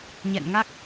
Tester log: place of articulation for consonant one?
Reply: palatal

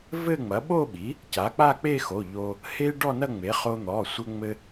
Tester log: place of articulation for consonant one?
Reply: labial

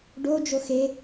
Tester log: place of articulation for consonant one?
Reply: retroflex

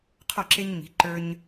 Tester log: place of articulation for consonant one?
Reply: uvular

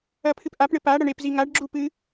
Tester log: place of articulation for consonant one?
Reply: labial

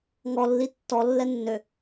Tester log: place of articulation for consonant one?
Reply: velar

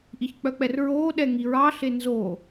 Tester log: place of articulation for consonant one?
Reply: glottal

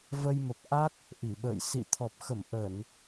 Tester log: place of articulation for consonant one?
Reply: labial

